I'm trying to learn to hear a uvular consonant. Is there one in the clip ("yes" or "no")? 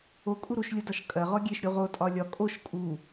yes